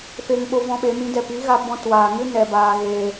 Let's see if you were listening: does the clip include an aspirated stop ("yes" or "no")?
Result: no